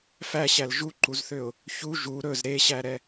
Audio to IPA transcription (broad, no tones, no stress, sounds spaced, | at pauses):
f æ ɕ æ l ʒ u ǃ u z θ ø ʊ̯ | ç u ʒ u ɾ ɵ z ɾ e ɕ æ ɾ ɛ